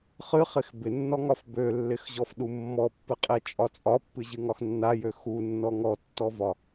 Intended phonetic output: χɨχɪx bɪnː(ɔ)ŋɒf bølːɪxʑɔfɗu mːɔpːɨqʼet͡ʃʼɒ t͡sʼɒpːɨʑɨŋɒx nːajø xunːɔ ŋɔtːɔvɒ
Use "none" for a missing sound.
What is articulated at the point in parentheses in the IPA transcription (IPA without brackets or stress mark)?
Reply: ɔ